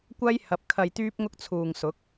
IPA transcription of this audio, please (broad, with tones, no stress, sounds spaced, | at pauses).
kʷ ɐ˥ j h ɐ˨˥ p̚ kʰ ɐ˧ j t̪ yː˥ p̚ ŋ ʊ˥ k̚ t͡sʰ uː˨˩ ŋ s ʊ˨˥ k̚